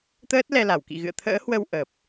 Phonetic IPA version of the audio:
t̪ əː˦˥ t̚ l ɛ˧ l a˧˩ w k ḭ˧˨ ɣ ɨ̰˧˨ ə̯ t̪ʰ ə̰ː˧˥ h w ə˧ w ʔ ə˨˩ p̚

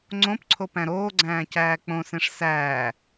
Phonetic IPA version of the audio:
ŋ͡ǀ õ p ǀʰ o p æ̃ ɾ oː ɡ͡ǀ æ̃ː c æː k͡p õ s ẽ ʂ s æː

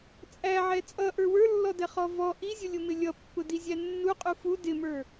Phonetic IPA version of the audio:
t͡sʼ æ ʕ ɛ t͡sʼ ʌ ʔ ə˞ w ə˞ lː ɔ d ɛ χ ɔ v ɔ ʔ i zʲ ʊ lʲ ʊ m ɪ lʲ ʌ pː ʊ d i zʲ æ nː u qʼ u f u d ɪ m ə˞

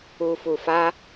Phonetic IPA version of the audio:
u˧ f u˧ f a˦

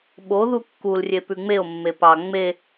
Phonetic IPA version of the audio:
ɓ o ð u kː u l rʲ e p ʉ ŋ͡m e o̯ mː e p ɑ ŋ͡m e

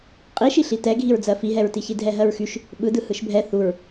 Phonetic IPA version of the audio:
qʼ i ʃ i ɬ i t ɛ ɡʱ i ɹ d͡z ɜ f i ɦ ɛ ɹ t i ç i dʱ ɛ ɦ ɜ ɹ x y ʃ | ɓ ɯ d ɯ h ɯ ʃ bʱ ɛ θ u ɹ

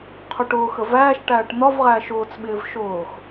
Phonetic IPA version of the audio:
qʰ ʊ ʈ ʊː x ə v æː ʃ ʈ æː ʈ n̪ ɒ v ʁ æː ʃ ʊː t͡s ɓ ɪː v ʃ ʊː x

